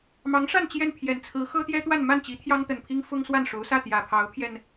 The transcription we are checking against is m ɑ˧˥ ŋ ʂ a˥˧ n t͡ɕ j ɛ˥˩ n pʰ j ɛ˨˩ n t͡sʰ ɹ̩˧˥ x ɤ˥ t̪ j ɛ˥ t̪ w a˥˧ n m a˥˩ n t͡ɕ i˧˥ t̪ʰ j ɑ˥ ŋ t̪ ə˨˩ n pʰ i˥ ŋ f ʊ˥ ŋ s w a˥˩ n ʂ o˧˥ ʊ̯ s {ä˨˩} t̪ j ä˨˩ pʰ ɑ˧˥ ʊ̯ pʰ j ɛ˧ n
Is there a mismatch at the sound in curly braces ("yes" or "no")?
yes